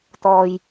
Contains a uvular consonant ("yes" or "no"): no